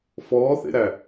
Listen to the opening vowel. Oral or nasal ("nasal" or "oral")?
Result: oral